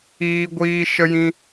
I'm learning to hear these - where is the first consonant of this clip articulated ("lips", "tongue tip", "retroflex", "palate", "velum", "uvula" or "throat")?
velum